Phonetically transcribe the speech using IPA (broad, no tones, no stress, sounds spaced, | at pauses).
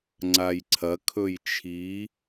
ŋ͡ǀ a j ǀʰ ɐ kʰ ɵ j t͡ʃʰ i